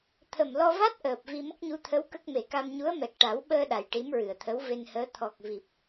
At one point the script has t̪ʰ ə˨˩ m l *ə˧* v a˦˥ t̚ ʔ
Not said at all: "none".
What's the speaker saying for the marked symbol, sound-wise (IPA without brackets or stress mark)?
ɔ˧